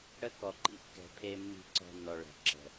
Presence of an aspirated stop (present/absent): present